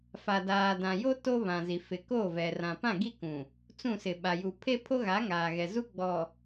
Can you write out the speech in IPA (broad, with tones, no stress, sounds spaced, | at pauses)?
f a˨ d aː˨ d ã˨ j o˦ t o˦ β ã˨ z i˨ f ɪ˨ k o˦˨ v ɛ˨ r ã˨ p ã˦˨ ɡ i˦ k ũ˨ | t͡s ũ˦˨ s ɪ˨ ɓ a˨ j u˨ pʰ e˦ pʰ o˦ ɣ a˨˦ ŋ aː˨ ɣ ɛ˨ z u˦ ɡ͡b ɔ˨